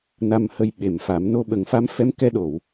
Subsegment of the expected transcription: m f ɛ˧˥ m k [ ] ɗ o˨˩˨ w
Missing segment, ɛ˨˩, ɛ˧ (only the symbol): ɛ˧